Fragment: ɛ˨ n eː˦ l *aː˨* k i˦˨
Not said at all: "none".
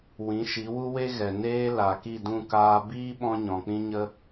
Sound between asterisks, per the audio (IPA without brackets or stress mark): a˨